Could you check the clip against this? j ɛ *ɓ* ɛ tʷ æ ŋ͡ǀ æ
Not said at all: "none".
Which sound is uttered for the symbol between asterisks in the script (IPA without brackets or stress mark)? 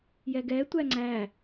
ɡ